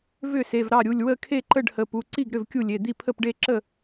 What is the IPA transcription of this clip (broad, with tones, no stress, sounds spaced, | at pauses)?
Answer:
v ʏ˥˩ s e˩˧˩ v ɾ ɑ˥˩ ɾʲ u˩˧˩ lʲ w ə˥˩ kʰ e˥˩ ǃ ə˥˩ ɖ h ə˩˧˩ p u˩˧˩ ǀ i˥˩ ɡ ɾ ʏ˥˩ v kʲ u˥˩ lʲ e˩˧˩ d̪ i˥˩ pʰ ə˥˩ p ɖ e˥˩ ǁ ə˥˩